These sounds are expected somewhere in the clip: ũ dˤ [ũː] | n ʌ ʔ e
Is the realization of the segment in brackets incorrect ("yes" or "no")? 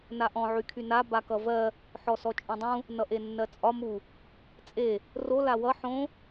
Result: yes